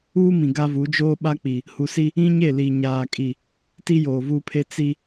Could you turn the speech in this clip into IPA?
uː˦ m ĩ˨ ɡ a˦ v u˨˦ d͡ʒ oː˦ ɓ a˦ k͡p i˨ | h u˨ s i˦ | ĩ˦ ɲ e˦˨ l i˨ ɲ aː˨ kʼ i˨ | t i˦ j oː˨ v u˦ pʰ e˦ t͡s i˦

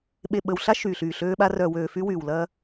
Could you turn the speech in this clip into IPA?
ɓ e˨ ɓ ə˨ w ɬ a˦ ʃ yː˨ ɬ yː˨ ɬ øː˦ ɓ a˦ r œ˨ w øː˨ f y˦ w yː˨ w l ɐ˦

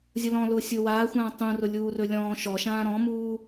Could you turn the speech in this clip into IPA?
zʲ ʊ l ɔ̃ l ʊː sʲ ʊː w aː xʷ ãː tˤ ũ r ʊ lʲ uː r ɵ lʲ ɔ̃ː ʃ ɔ ʃ ãː ɾ ɔ̃ m uː

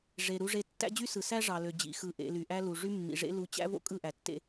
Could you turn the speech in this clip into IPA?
ʐ e˨ ɾ u˨ ʐ e˨ tː æ̰˦ d͡ʑ y˦ s ɯ˨ s æ˦ ʐ ɑ˨ l ø˨ d͡ʑ ḭ˨ x ɯ˨ ʔ ḛ˨ l y˨ ʔ æ˦ l u˨ ʐ y˦ mː ḭ˨ ʐ ḛ˦ l u˨ t͡ɕ æ̰˦ v o̰˦ kʼ ɯ˦˨ ʔ æ˨ tː ḛ˦

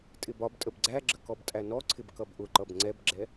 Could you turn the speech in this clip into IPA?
tʼ ɪ b ɒ b tʼ ə b ɡ͡ǀ æ ɡ͡ǁ ə k ɔ b tʼ æ n ɔ ǀʰ ɪ b k ʌ b ʔ ʊ ǃ ʌ b ŋ͡ǀ ɛ b ɡ͡ǁ ɛ

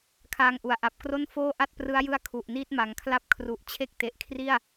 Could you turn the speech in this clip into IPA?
kʰ aː˧ ŋ ʔ u˩˦ a̯ ʔ a˨˩ p̚ k r o˥˩ n f oː˥˩ ʔ a˥˩ t̚ p r ɯ˦˥ a̯ j ɯ˦˥ a̯ kʰ u˨˩ ʔ n iː˥˩ t̚ m a˩˦ ŋ kʰ l a˥˩ p̚ kʰ r u˨˩ ʔ t͡ɕʰ e˥˩ k̚ t e˨˩ ʔ kʰ r i˥˩ a̯

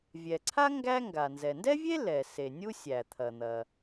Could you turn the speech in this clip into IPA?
vʲ ɛ˩ ǀʰ a˥ ŋ ɡ æ˥ ŋ ɡ a˩ n z ɛ˩ n d ɛ˥ vʲ e˥ l ɛ˩ s e˩ nʲ u˥ sʲ æ˩ t̪ʰ ɐ˩ n̪ ɐ˩

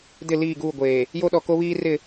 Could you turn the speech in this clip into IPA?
d ɪ˦˨ l iː˦˨ ɡ uː˦˨ ɡʷ eː˨ | j o˦ ɗ ɔ˨ k o˦ β iː˦ r ɪ˦˨

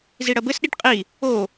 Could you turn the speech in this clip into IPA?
z i ɽ ɐ b ɘ s ɗ i ʈ qʼ i | o

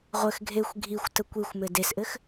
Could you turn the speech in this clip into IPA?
ʁʷ ɘ x ɡʱ e xʷ ɡʱ i xʷ t ə kʷ i xʷ m ɘ d e s ʔ ɘ x

